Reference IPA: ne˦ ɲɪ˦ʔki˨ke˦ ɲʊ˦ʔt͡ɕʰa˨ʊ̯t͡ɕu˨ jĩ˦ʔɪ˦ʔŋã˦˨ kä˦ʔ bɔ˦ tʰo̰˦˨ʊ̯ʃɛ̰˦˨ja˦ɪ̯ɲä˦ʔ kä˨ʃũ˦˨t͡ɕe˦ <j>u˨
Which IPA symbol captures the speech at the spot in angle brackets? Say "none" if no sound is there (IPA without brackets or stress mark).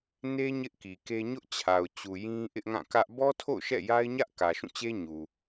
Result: ɲ